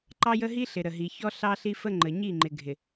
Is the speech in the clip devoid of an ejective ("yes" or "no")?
yes